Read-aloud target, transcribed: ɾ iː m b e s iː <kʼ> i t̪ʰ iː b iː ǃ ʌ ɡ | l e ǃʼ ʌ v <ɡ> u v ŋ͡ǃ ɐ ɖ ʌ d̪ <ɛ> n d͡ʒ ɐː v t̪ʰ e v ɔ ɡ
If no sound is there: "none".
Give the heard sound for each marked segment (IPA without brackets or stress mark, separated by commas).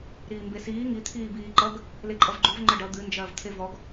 ŋ, ɡ͡ǃ, ɨ